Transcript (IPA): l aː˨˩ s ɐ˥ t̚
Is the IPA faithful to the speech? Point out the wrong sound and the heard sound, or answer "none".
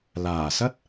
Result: none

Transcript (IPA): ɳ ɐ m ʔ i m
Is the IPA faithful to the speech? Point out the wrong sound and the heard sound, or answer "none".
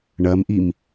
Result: none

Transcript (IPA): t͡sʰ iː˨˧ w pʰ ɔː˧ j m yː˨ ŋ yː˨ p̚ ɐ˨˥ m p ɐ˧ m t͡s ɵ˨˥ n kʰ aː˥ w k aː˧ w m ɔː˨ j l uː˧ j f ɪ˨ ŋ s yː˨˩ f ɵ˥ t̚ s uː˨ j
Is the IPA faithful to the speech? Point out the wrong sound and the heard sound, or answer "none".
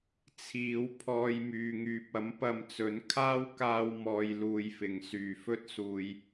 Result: none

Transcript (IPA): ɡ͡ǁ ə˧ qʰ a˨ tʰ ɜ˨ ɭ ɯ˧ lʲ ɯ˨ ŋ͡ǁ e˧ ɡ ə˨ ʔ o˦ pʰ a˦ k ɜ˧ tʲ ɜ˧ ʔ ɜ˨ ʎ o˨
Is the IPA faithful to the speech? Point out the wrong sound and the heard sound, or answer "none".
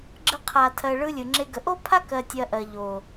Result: none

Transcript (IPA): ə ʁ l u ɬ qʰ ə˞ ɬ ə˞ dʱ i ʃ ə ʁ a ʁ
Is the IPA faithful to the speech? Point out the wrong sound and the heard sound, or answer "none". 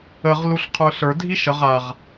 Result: none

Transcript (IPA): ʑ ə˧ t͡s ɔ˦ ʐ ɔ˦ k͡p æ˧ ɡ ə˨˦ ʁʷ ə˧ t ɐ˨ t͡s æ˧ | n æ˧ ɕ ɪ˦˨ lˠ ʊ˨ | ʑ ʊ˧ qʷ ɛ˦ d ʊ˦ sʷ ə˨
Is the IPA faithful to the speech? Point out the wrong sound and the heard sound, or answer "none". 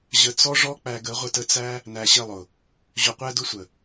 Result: ɐ˨ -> ə˨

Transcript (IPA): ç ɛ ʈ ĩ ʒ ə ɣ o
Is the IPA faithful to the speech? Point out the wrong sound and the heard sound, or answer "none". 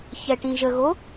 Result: none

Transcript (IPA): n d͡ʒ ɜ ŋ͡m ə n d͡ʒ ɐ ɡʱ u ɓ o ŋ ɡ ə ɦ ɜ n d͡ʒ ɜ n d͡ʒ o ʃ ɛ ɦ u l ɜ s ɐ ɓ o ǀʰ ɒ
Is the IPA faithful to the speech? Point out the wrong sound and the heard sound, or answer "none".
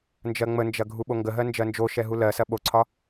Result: none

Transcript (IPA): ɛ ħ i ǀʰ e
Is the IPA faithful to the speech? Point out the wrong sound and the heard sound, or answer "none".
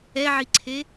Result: ħ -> ʕ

